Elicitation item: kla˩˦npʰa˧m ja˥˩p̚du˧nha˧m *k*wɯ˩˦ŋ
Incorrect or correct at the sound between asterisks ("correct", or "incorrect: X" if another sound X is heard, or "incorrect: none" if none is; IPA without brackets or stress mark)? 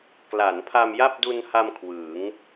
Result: incorrect: kʰ